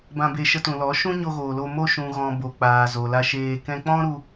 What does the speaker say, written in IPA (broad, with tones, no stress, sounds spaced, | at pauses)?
b ã˧ b e˧ ʃ ə˧ t ũ˨ l ɔ˨˦ ʃ ũ˦ ɲ o˧ ɣ oː˨ l o˧ m o˧ ʃ ũ˨ ɣ ɔ̃˨ b o˨ k͡p aː˨ z o˨ l a˧ ʃ eː˧ k ɛ̃˧ k͡p ɔ̃˦ ɾ u˧